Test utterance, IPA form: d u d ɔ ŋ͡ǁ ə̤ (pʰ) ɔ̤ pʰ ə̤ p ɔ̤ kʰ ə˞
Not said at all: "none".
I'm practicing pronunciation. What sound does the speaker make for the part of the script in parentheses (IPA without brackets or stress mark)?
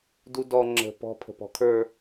p